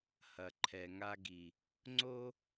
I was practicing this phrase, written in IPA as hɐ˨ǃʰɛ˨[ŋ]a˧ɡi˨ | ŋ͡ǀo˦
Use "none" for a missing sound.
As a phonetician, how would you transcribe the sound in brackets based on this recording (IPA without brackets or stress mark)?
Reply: ŋ